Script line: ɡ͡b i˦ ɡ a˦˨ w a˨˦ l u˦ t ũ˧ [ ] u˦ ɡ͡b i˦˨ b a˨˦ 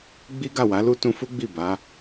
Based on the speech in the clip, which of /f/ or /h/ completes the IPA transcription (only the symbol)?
f